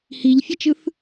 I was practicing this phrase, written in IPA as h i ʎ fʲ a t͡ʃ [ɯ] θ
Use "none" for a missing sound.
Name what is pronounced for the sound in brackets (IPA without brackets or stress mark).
ɯ